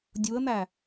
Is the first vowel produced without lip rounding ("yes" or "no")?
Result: no